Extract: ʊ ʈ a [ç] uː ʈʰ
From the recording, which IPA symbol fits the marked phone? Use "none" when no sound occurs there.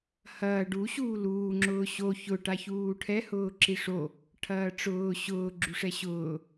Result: ç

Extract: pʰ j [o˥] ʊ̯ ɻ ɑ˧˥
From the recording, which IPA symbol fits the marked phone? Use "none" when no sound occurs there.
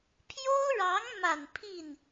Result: o˥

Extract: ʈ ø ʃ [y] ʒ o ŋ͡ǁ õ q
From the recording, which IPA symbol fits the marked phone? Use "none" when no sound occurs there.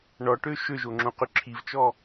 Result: ø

